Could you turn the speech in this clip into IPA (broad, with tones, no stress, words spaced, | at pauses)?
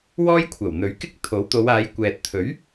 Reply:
wɔː˥jkʷʰɐ˨˩wn̪ɵ˨˥ɥkɪ˥k̚ t̪ʰo˨˥wt̪o˨˧waː˨˧j kʷɛː˨t̚ t̪ʰɵ˨˥ɥ